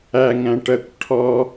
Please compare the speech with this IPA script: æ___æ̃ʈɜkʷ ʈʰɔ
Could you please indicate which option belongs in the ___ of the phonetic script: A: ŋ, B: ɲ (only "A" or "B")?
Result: A